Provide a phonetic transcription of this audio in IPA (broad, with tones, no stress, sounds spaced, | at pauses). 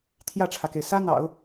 t̪ʰ j ä˥˩ ʈ͡ʂʰ ä˩ k e˩ ɪ̯ s ä˥ n̪ ɑ̰˨˩˦ ʊ̯